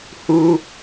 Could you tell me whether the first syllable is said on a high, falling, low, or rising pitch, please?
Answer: low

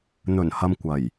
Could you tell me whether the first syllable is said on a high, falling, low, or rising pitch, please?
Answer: low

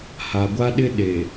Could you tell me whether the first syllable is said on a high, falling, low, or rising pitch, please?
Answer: low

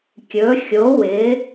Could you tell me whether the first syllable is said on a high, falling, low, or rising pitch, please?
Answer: rising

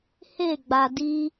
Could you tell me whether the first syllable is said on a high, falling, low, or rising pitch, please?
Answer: falling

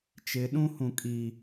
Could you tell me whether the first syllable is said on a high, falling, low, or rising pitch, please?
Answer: rising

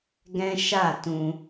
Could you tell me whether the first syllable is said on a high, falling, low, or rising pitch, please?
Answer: high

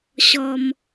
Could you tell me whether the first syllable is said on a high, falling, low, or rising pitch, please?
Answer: high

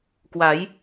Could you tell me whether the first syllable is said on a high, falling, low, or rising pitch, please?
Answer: rising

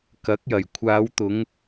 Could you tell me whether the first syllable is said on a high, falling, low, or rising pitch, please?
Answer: rising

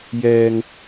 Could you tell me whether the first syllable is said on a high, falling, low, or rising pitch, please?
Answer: low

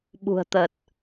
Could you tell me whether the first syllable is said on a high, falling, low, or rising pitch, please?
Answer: low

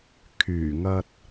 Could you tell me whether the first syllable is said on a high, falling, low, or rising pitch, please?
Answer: low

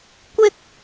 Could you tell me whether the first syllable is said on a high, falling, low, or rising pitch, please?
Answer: high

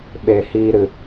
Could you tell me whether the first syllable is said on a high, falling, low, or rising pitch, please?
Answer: low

